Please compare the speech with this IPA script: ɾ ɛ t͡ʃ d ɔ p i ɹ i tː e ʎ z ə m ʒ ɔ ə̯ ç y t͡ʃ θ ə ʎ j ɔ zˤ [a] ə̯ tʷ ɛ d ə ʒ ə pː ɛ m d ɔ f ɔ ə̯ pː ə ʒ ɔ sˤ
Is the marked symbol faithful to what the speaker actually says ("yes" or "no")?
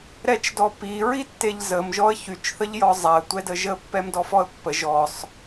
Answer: yes